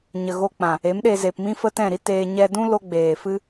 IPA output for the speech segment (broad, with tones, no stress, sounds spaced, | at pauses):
ɲ ə˨ ɣ o˧ k͡p ã˨ | e˨˦ m ɗ e˧ z e˨ p m ĩ˦ f ə˦ t ɛ̃˦˨ ɾ i˦ t eː˧ ɲ ɛ˧ d ũ˦ l o˦ ɡ͡b eː˨ f ɨ˦